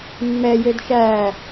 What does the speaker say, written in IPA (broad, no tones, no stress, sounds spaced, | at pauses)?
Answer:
mː ɛ j ø d ʃ æː